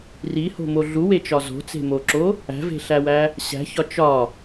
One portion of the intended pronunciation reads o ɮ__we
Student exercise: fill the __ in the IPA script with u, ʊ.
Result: u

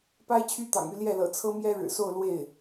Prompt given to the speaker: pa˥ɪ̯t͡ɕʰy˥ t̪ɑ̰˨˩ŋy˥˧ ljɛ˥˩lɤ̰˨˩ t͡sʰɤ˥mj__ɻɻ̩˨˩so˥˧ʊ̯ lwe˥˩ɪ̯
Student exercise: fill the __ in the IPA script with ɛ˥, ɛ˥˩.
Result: ɛ˥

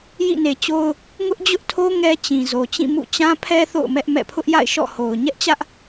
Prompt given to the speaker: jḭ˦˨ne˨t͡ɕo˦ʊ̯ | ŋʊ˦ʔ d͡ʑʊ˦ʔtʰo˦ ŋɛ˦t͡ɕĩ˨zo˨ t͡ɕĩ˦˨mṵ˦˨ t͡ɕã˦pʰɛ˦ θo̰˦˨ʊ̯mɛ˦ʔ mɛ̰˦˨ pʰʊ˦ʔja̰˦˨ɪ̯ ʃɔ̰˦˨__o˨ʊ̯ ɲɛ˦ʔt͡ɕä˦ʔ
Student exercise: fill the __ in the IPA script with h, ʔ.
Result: h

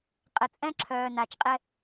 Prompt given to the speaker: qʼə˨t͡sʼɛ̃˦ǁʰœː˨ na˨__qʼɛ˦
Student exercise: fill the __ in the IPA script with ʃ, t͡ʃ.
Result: t͡ʃ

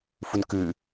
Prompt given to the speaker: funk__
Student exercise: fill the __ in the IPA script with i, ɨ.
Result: ɨ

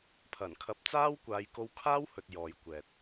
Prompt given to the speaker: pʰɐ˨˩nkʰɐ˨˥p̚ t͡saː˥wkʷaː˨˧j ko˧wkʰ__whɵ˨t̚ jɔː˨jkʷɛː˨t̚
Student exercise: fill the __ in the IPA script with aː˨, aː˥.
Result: aː˥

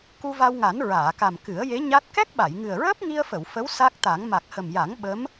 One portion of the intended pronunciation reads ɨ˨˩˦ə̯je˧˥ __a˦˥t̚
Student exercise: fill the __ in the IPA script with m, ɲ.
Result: ɲ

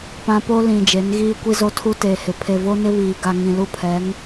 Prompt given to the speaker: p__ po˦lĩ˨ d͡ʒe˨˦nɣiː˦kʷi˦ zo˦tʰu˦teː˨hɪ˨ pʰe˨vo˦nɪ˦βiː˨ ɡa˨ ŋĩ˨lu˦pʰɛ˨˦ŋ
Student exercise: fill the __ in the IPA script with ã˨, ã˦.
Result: ã˦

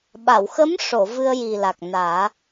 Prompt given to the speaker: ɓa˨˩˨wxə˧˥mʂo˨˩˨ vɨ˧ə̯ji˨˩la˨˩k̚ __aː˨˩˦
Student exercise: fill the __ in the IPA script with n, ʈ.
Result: n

